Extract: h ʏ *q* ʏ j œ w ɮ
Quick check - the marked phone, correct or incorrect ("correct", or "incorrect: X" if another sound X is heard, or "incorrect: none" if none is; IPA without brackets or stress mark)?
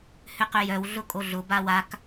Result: correct